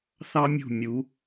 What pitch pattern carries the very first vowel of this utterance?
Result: high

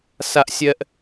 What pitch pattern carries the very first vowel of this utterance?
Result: high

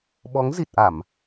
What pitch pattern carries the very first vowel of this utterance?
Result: rising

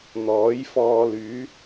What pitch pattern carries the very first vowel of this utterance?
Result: rising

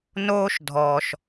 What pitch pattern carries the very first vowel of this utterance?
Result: high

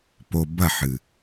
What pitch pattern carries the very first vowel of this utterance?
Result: low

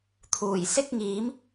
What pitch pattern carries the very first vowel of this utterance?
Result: low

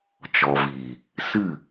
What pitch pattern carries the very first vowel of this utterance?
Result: low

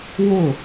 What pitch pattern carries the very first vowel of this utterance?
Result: falling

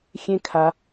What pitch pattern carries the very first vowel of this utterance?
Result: high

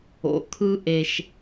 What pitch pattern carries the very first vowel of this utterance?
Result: low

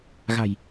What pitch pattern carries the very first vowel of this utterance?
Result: low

